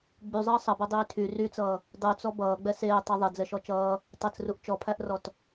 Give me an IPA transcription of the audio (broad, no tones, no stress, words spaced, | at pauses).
ɡ͡byzˤʌː sˤʌbɛdˤyː tʰy ryt͡sʌː | dˤyt͡sɔ bʌːɡ͡bɛ seːtˤɛ ðˤɛd͡zɛʃɔ t͡ʃʌː | tˤɐt͡sruʔ t͡ʃɔpʰæʔrɔt